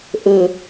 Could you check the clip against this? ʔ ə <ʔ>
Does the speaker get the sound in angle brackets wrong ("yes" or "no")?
yes